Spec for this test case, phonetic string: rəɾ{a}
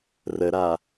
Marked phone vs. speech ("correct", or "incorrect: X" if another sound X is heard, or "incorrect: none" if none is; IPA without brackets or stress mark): correct